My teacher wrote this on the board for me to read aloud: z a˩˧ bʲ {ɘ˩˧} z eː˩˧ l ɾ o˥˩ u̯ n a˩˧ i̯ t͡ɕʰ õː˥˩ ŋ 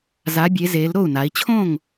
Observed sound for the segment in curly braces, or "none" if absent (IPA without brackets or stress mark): e˩˧